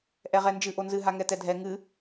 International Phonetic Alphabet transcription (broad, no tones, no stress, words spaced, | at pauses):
ʔɛʁɛnd͡ʒɨ ʔonzɨ ɦaŋɛtɛdʱɛ ŋɨ